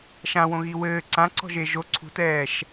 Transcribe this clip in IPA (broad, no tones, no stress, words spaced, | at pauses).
ʃãwõɣi wɘː ǀã ǀɔ̤ʒeʒo ǀʰṳtɛːʃ